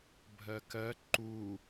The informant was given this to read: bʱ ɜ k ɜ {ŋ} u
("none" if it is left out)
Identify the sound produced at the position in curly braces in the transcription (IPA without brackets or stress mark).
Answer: ǃ